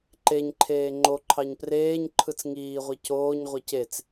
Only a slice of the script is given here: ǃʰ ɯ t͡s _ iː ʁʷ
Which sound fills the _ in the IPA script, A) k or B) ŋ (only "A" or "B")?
B